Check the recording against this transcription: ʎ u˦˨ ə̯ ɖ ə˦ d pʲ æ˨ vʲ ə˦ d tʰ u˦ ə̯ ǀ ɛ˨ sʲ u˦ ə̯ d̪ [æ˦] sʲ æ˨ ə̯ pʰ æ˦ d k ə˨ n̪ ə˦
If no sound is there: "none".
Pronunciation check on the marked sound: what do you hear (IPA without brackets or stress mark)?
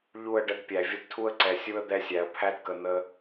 ɛ˦